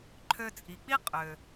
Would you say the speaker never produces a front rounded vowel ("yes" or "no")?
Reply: no